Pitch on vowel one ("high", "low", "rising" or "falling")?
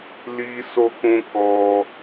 high